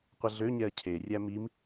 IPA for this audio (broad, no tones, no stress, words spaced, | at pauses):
qʷəɮøɲɛɐ̯ cʰerʲæ mim